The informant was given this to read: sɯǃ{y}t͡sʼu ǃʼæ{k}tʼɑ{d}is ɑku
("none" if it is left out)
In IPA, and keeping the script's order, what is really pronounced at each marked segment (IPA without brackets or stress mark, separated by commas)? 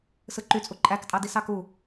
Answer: y, k, d